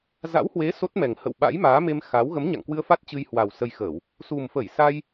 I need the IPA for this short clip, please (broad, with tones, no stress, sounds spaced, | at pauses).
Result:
z a̰˧˥ w h w e˨˦ s o˦˥ t̚ m ɛ˨˩ ŋ h ə̰˧˨ w ɓ a̰˧˥ j m aː˨˦ m e˧ m x a˨˦ w ɣ ə˨˦ m ɲ a̰˧˨ ŋ k w ɨ˧ ə̯ f a˦˥ t̚ t͡ɕ ɨ˧ j h w a˨˩ w s ə˧ j x əː˧˩˨ w | s u˨˩ m f ə˧˩ j s a˧ j